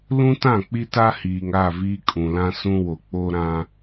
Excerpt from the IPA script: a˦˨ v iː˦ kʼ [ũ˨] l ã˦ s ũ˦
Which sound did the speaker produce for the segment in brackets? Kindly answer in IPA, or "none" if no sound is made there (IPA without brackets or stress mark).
ũ˨